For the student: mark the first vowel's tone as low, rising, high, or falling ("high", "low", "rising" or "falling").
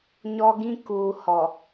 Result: high